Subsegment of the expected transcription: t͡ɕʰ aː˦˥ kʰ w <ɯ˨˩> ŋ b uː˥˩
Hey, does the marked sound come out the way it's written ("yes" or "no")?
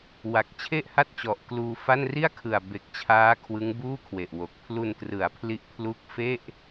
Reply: no